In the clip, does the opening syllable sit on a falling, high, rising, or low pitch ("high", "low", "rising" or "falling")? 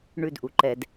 high